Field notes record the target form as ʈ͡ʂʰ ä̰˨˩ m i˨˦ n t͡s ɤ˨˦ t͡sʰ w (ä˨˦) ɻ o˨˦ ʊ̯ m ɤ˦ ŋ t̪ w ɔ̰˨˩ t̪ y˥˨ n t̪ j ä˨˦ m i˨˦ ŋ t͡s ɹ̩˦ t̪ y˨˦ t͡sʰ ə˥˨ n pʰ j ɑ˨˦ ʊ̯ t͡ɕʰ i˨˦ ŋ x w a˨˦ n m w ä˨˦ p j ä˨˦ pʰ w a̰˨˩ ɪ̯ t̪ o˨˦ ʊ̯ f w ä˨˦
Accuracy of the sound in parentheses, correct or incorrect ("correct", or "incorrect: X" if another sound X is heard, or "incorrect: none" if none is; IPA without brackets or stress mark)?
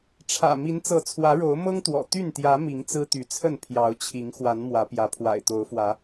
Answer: correct